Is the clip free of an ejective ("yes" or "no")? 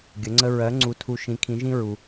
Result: yes